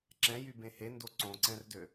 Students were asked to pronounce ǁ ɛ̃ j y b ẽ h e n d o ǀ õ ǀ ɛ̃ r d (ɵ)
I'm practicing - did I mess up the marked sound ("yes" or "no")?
yes